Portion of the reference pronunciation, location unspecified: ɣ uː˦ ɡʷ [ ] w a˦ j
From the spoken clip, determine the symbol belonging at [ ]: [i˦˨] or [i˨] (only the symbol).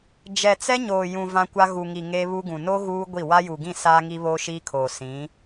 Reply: i˦˨